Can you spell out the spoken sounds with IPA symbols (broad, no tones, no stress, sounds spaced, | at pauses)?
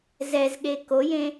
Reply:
z ɛ z ɠ e k o j ẽ